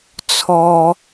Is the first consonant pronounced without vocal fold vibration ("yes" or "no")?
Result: yes